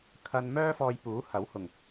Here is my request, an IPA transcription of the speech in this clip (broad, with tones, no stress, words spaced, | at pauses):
kʰɐ˧nmœː˥ fɔː˧jpuː˨˥hɐ˨˥w hʊ˨ŋ